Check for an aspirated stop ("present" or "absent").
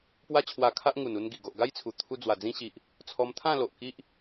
present